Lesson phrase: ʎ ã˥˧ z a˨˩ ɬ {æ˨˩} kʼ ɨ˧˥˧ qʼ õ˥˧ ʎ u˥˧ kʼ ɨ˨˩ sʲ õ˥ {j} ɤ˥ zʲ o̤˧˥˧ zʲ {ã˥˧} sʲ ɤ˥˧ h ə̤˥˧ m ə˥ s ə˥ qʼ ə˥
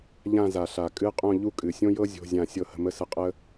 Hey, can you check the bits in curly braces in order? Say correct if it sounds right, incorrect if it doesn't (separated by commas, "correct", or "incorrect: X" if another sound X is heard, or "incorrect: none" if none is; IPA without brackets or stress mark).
incorrect: a˨˩, correct, correct